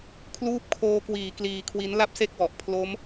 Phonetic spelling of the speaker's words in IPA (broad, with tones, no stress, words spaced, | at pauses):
kʰluː˦˥p̚kʰoː˧kwiː˩˦ kliː˧kʰwi˦˥n la˥˩p̚se˥˩k̚wɔ˨˩ʔ pʰlo˦˥m